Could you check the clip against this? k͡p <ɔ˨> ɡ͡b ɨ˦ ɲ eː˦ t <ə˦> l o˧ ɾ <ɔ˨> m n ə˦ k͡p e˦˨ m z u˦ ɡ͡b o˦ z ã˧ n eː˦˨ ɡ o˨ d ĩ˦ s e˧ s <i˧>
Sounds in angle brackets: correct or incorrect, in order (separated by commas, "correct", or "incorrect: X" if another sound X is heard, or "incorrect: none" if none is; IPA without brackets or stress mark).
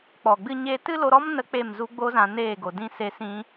correct, incorrect: ɨ˦, incorrect: ɔ˦, incorrect: ĩ˧